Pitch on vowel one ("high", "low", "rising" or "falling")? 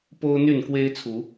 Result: high